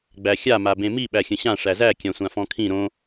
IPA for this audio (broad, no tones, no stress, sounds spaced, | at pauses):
ɡ͡b æ xʲ a m a b ẽ m i ɓ æ xʲ ə̃ ɕ ã ʂ æ z æ kʲ ã sʷ ã f ɔ̃ kʰ ĩ ɾ õ